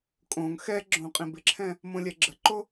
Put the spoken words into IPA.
kʼ õ ŋ x ɛ ɡ͡ǁ õ qʼ ĩ b ɪ ǁʰ ɛ̃ | m õ lʲ ɛ ɡ͡ǁ ə ǃ o

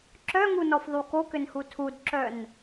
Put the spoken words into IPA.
ǁ œ ŋ u n ɔ f ðˤ u k o k ʏ n h u tʰ u d ǁ œ n

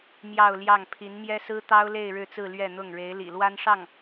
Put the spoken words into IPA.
m j ɑ˥˧ ʊ̯ l j ɑ˥˩ ŋ pʰ i˧˥ n m j ɛ˥ s ɹ̩˥ t̪ ɑ˥ ʊ̯ l e˥˧ ɪ̯ ɻ ɻ̩˥˧ t͡s ɹ̩˥˧ l ɥ ɛ˥˧ n̪ ʊ˥˩ ŋ ɻ e˧˥ ɪ̯ l ḭ˨˩ l w a˥ n ʂ ɑ˥˩ ŋ

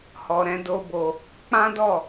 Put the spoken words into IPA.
h ɔ˧ ɾ ɛ̃˦ d o˦ b o˧ | k͡p ã˦ d ɔ˦˨

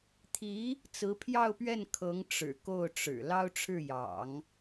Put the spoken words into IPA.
t̪ʰ i˧˥ | t͡s ɹ̩˧˥ pʰ j ɑ˥˧ ʊ̯ p ɥ ɛ˥˩ n kʰ ɤ˧˥ ŋ ʈ͡ʂ ɻ̩˨˩ k o˥˩ ʊ̯ ʈ͡ʂ ɻ̩˨˩ l ɑ˥ ʊ̯ ʈ͡ʂʰ ɻ̩˥˩ j ɑ̰˨˩˦ ŋ

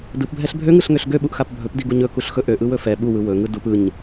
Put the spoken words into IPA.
d ɯ p bʱ ɛ ɬ bʱ ø ŋ ɯ ɬ ŋ ø ɬ ɡ ø ɓ u ʔ x a p bʱ ɵ p d i ɡ u ɲ ɵ k u ɬ x ɵ ʔ ø ʔ ɯ w ɵ f ɛ ɓ u w ɯ w ɵ ŋ ɯ d u p ɯ ɲ

